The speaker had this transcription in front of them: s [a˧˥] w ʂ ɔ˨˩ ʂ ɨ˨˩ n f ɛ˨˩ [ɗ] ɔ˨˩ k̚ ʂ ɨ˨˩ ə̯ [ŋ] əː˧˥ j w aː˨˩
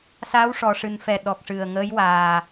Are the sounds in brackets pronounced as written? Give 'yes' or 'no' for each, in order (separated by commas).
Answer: yes, yes, yes